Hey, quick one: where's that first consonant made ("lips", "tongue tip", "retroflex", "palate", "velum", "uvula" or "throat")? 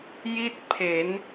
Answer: palate